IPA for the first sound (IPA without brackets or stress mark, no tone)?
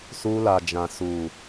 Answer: s